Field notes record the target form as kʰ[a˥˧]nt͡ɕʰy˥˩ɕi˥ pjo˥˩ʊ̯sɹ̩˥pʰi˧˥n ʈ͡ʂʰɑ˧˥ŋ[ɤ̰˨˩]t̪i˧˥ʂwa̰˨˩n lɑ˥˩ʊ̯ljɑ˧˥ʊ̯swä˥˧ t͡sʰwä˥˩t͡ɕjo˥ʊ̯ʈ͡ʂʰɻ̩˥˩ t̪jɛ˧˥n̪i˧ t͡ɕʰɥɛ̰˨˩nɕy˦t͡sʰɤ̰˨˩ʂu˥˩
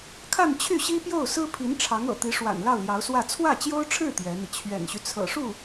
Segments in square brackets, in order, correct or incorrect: correct, correct

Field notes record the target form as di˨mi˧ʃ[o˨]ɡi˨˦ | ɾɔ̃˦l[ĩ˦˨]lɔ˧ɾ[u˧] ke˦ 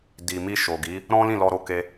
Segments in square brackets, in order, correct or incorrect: correct, correct, incorrect

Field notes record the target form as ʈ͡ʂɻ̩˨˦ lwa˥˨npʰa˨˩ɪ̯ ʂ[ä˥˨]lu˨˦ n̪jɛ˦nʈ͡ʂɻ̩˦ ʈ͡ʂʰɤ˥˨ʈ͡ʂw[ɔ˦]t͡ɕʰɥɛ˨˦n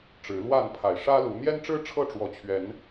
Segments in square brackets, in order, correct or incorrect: incorrect, incorrect

